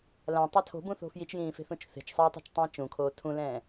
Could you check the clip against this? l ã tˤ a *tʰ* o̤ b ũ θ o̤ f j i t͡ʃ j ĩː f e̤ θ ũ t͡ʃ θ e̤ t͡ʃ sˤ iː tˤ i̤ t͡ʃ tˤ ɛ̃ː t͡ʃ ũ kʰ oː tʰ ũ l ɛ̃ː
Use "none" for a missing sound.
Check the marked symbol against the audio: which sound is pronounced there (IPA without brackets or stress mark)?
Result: tʰ